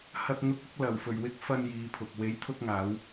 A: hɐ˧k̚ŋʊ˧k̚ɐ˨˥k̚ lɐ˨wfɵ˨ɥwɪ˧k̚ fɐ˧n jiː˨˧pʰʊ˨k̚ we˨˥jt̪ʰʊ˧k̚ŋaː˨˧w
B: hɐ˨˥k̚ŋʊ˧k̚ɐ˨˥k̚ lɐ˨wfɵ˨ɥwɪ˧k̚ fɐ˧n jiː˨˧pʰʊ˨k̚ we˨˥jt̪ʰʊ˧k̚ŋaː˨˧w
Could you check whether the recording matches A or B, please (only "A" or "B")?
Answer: A